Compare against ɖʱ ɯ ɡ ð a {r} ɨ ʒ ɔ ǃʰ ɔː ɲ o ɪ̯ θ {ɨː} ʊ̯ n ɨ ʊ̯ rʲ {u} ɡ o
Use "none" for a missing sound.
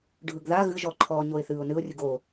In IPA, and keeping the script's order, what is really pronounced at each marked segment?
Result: ɣ, ɨː, ɯ

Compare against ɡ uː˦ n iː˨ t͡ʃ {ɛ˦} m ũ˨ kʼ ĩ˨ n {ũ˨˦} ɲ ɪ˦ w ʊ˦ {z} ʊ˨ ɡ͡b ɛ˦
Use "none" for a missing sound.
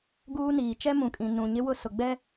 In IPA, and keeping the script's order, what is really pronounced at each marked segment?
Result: ɛ˦, ũ˨, s

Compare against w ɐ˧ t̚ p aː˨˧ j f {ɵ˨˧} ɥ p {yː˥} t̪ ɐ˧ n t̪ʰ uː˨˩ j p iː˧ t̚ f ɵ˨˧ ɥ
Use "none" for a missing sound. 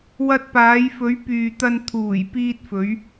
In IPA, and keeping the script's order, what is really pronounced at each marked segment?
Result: ɵ˨˧, yː˨

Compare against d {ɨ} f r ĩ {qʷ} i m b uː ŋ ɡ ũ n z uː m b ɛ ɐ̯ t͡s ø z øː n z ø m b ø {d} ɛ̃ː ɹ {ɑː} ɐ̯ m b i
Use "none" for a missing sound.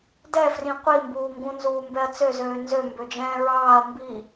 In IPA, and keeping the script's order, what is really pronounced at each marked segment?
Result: ɛ, qʷ, d͡ʒ, ɑː

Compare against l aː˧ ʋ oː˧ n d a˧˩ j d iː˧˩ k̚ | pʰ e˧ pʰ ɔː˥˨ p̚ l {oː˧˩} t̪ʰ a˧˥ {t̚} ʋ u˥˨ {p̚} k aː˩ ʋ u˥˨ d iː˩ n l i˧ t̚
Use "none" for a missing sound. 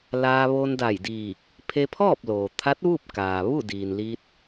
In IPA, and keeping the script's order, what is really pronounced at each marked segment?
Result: oː˩, t̚, p̚

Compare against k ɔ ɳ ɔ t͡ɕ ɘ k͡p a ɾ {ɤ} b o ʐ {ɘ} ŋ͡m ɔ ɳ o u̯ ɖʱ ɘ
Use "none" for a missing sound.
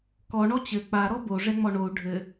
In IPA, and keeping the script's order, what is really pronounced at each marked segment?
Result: ɔ, ɛ

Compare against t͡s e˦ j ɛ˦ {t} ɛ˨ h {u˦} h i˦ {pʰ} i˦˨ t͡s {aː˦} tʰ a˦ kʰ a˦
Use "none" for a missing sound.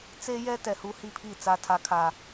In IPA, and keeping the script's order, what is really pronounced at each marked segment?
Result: t, u˦, pʰ, a˦

